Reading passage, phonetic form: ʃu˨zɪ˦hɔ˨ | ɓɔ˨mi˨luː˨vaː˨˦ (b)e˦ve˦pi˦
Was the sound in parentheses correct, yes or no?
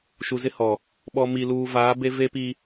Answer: yes